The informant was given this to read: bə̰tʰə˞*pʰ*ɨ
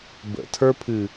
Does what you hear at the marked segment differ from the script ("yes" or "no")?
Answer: no